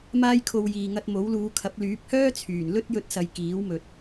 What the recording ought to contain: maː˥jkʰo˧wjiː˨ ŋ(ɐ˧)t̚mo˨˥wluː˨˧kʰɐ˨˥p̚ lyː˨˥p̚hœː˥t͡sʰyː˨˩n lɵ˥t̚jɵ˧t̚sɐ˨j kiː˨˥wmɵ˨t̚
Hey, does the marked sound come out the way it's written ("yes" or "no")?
yes